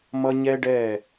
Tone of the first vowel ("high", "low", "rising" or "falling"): high